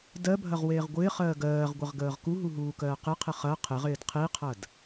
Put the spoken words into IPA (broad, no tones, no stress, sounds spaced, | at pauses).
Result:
d ɜ bʱ ɐ ʁ w eː ʁ ɡʷ ɪː χ ɜː ɡ ɜː ʁ ɡʷ ə ʁ ɡ əː ʁ k u ɦ u ɦ uː k ɜː q ɪ qʰ ɪ χ ɐ qʰ ɪ ʁ ɪː d qʰ i qʰ ɐ d